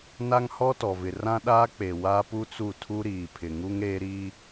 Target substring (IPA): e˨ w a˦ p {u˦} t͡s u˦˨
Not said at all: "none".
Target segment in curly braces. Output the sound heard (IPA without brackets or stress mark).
u˦